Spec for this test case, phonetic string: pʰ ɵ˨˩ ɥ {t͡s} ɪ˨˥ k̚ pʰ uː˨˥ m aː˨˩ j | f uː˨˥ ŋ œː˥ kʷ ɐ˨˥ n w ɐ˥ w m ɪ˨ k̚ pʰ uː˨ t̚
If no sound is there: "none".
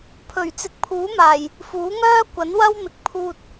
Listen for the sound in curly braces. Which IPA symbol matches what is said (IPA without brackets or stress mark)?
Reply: t͡s